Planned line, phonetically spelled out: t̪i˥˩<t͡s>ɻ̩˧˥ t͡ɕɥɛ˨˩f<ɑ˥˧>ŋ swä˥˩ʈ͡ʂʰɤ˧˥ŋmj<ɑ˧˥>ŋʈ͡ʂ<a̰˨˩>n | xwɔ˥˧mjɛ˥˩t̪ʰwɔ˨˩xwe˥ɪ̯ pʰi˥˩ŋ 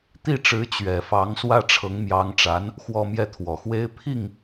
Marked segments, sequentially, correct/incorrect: incorrect: ʈ͡ʂ, incorrect: ɑ˧˥, correct, incorrect: a˧˥

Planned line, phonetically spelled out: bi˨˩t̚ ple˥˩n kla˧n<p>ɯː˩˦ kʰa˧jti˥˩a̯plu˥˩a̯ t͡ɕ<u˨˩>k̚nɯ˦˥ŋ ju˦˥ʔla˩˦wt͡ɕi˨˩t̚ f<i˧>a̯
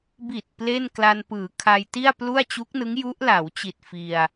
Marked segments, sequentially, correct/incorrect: correct, incorrect: u˦˥, correct

